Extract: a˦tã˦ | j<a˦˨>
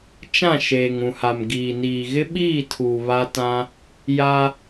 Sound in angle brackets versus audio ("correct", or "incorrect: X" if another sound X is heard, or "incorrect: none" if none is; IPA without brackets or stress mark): incorrect: a˦